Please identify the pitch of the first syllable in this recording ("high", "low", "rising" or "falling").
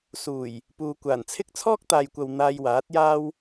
low